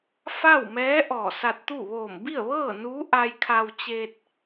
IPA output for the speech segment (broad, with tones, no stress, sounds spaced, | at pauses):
f a˥˨ w m ɛː˧˥ ʔ ɔː˧˩ s a˧ t̚ t̪ u˥˨ ʋ oː˧˩ m b i˥˨ ə̯ ʋ ɤː˥˨ n uː˧˥ ʔ a˧ j kʰ a˧ w t͡ɕ e˧ t̚